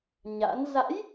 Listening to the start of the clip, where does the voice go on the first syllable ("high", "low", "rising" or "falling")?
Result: rising